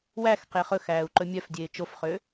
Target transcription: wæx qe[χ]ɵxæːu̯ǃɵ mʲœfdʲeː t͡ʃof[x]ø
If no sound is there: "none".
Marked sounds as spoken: χ, χ

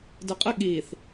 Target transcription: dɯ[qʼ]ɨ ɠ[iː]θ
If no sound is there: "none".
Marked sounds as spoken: qʼ, iː

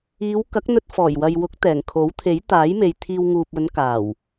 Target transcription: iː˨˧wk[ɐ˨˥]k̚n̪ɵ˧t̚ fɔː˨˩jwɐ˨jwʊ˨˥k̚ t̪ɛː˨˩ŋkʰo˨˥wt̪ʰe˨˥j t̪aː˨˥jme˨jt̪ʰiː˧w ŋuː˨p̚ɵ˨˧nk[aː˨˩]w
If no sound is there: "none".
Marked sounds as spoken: ɐ˨˥, aː˨˩

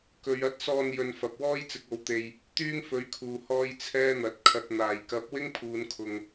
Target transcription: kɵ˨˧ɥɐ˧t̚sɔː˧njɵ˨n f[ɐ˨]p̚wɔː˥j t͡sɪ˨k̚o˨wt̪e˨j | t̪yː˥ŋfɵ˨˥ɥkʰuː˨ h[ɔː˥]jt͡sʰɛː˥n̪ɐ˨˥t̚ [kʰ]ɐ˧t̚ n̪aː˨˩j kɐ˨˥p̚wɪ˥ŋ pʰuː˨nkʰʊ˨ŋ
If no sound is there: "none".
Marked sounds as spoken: ɐ˨, ɔː˥, kʰ

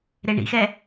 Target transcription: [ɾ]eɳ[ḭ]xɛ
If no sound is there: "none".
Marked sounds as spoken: ɾ, ḭ

